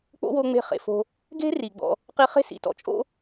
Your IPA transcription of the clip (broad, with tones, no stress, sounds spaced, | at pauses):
k͡p o̰˦ w o˧ ŋ͡m e̤˦ χ ḛ˧ f o̤˦ | ɡ e̤˦ r i˨ ɡ͡b ɔ̰˧ | q i˧ χ e̤˦˨ s ḭ˨ t ɔ̰˧ t͡ʃʼ o̰˦